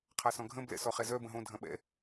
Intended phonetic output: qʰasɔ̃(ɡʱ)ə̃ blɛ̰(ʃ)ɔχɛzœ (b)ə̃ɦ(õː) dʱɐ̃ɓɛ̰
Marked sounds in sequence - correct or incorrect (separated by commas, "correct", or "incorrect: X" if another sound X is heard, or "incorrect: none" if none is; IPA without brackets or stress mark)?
correct, incorrect: s, correct, incorrect: õ